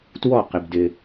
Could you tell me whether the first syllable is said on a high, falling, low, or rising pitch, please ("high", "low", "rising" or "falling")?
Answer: falling